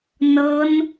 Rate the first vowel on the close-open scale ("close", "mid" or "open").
mid